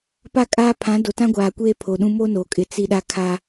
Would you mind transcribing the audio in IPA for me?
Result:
pa˦˨kʼaː˦ pʰã˨˦do˨tã˦ɡʷaː˨ kʷe˦pʰo˨ɗũ˦ mo˦no˨kʼɪ˨ t͡si˦ɗa˦kʰa˦

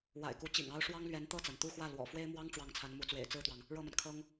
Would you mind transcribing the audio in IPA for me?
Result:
wa̰˨˩ɪ̯ku˧˥ t͡ɕḭ˨˩ŋɑ˥ʊ̯ ʂwɑ˥ŋlɥɛ˧˥n t̪ɤ˥˩t͡sa˩nt̪u˥˧xwä˥˩ lwɔ̰˨˩fwe˥ɪ̯mwɑ˥ŋ ʈ͡ʂwɑ˥˩ŋt͡sʰa˧˥nmu˧˥t͡swḛ˨˩ɪ̯ t͡sɹ̩˥˩t̪wɑ˩ŋ | ɻɤ˥˩ma˩n kʰɤ˥ŋ

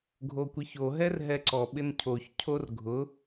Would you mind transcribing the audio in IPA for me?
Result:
ɡʱokʷiço ɦɛrɦɛǀɔ ɓɪncʰoç cʰorɡʱʊ

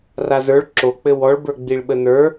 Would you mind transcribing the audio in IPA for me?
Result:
razə˞ɭ ǁok͡pɘ wɔɭbə˞ ɡ͡biɭɓənə˞

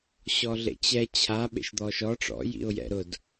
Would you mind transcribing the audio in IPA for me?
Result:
ɕɔɮḛt͡ɕɛ t͡ɕʰa ɓḛʃd̪ɔʃɔ ʈ͡ʂɔ̰ jḭʊ̯jɛ̰ ɾʊd

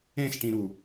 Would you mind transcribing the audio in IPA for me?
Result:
ẽsʈĩɾu

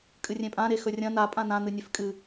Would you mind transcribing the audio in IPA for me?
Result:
kʼɨrʲẽpʼã ɾexɵrʲɐ̃ na pʼãnã n̪ɨnʲefkʼɨ

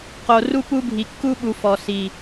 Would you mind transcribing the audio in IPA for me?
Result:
qo˨ ru˦pu˦bʱi˨ kːu˦ɓu˨ fɔ˨si˨

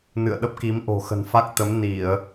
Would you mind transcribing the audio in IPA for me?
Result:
nɨ̰˧˨ə̯ɗə˦˥p̚ki˨˦mʔo̤˨˩ xə̤˨˩nfa˦˥k̚t̪ə˨˦m ni˧˩˨ə̯

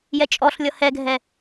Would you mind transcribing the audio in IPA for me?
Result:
jɛt͡ʃʼɔɬlʲʌ hɛɡʱɛ

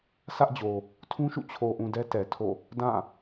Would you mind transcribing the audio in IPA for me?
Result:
sä˦ʔd͡ʑo˨ | tʰũ˦ʃṵ˦˨ t͡ɕʰo˨ʔũ˨ dɛ˦tɛ˨tʰo̰˦˨ | dã˦˨

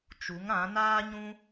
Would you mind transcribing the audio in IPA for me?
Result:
t͡ʃu˨˦ŋã˨˦ naː˦ɲũ˦

